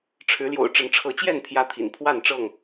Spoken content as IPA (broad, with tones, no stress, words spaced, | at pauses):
ʈ͡ʂʰɻ̩˨˦ ljo̰˨˩ʊ̯ ʈ͡ʂə˨˦nʈ͡ʂʰɤ˨˦t͡ɕjɛ˥˨n pʰjä˦t̪ʰḭ˨˩n pʰwa˥˨nʈ͡ʂɤ˥˨ŋ